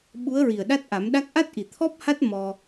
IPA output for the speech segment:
ɓ u˧˥ ə̯ ɹ i˨˩ ə̯ ɗ a˦˥ t̚ ʔ a˨˩˦ m ɗ a˦˥ k̚ ʔ a˦˥ t̚ ʔ i˨˩ t̪ʰ ɔ˦˥ p̚ h a˦˥ t̚ m ɔ˧

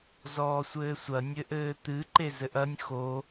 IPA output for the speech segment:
z ɔː sʷ ɘː sʷ ɐ nʲ ɘ ʔ ɘː t̪ ɨ ǃ e z ɘ ʔ ɐ nʲ x o

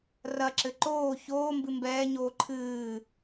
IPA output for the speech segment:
r ɐ ǁ ɘ ǃ oː ç oː m b ɨ m b ɛː ɲ oː ǃʰ ɨː

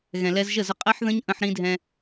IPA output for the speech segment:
ɣ ɛ̃˨ l ɛ˧ z ʒ ə˦˨ z ə˧ qʼ ɛ˦ ħ ð ə̃˦ ɲ ʔ ə̃˧ ħ ɾ ĩ˧ dʱ ɛ̃˧

